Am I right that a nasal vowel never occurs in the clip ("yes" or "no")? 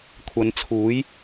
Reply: yes